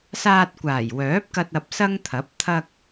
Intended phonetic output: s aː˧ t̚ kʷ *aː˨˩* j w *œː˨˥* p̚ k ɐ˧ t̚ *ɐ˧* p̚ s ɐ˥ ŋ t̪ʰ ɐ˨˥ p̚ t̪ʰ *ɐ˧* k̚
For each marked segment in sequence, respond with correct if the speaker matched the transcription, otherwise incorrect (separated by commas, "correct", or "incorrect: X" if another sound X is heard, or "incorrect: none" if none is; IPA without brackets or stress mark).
correct, correct, correct, correct